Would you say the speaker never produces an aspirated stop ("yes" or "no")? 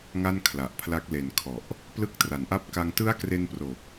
no